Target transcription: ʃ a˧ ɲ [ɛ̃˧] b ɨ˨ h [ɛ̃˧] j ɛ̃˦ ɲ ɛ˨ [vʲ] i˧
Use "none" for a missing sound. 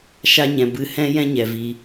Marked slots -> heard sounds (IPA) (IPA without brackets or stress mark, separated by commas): ɛ̃˨, ɛ̃˧, v